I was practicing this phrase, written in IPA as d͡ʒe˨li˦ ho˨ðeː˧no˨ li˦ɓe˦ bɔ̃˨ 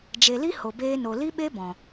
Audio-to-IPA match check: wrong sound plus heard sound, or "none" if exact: ð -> b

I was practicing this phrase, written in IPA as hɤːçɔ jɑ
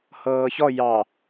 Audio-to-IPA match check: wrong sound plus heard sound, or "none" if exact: none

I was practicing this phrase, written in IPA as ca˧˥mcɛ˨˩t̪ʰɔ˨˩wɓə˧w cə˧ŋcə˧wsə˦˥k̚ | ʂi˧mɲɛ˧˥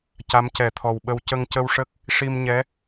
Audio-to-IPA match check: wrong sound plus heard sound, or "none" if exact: s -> ʂ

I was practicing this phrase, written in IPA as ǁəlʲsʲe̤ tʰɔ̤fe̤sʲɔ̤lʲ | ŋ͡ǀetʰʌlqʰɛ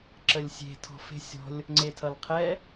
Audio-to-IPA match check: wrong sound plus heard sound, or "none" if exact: none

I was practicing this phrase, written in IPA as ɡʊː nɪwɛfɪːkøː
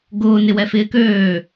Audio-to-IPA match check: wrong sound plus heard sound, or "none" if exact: none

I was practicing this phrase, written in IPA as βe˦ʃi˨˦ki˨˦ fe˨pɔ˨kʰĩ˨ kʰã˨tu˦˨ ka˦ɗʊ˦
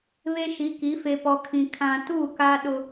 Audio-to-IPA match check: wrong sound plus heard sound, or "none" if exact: none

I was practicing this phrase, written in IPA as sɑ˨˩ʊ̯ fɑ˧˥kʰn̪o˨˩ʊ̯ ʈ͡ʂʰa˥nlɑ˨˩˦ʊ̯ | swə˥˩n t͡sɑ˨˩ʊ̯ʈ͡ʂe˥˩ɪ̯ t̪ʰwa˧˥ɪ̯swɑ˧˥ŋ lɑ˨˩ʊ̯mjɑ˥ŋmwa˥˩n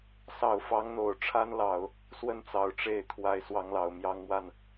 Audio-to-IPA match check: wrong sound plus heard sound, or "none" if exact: kʰ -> ŋ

